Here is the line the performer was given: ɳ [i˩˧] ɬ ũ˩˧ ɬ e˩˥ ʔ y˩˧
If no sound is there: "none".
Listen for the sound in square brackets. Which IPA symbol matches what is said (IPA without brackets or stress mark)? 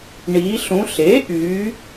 i˩˧